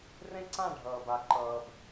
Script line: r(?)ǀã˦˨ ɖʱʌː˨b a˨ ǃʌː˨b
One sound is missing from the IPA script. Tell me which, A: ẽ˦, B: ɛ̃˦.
A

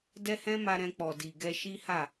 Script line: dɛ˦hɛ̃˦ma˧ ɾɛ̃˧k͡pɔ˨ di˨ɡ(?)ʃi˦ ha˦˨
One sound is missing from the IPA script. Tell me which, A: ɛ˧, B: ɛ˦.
A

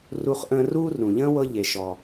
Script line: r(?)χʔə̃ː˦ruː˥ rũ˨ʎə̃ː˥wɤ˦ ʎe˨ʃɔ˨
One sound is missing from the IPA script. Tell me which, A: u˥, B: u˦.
B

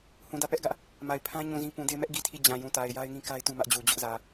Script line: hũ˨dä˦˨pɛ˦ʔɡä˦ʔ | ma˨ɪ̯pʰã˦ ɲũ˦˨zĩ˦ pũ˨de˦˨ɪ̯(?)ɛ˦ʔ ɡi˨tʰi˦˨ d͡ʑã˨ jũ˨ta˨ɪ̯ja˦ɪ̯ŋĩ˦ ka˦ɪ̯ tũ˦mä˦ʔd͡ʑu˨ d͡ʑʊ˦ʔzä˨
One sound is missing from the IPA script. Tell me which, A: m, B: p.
A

